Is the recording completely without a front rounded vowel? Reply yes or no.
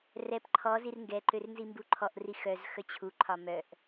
no